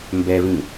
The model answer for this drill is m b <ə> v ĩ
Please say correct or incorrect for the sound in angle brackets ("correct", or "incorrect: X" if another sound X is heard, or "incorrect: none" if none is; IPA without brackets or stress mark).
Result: incorrect: ɛ